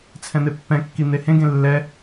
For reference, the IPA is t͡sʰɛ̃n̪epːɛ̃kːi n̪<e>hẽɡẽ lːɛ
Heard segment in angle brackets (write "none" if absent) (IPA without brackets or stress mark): e